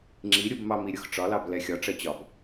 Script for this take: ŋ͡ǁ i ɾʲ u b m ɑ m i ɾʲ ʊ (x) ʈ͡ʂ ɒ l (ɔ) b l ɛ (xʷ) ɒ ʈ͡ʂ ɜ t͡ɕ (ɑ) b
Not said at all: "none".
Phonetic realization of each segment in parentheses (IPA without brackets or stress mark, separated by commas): x, ɑ, xʲ, ɒ